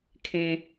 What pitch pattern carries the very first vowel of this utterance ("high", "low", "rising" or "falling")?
high